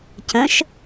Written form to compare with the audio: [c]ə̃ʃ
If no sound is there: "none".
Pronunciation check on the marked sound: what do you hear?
c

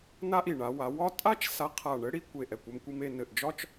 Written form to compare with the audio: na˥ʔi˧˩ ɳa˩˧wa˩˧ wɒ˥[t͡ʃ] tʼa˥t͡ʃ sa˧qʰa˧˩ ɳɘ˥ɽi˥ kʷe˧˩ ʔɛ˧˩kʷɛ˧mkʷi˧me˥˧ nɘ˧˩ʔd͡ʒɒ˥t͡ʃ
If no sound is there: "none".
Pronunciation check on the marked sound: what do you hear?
none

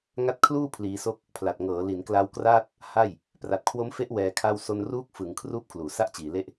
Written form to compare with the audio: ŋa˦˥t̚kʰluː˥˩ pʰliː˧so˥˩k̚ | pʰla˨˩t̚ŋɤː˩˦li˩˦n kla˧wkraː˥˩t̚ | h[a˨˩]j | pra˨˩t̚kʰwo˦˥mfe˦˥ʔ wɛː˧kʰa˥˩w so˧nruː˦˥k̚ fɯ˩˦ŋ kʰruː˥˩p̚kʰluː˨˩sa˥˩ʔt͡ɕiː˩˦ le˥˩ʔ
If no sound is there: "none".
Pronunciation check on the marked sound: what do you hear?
a˥˩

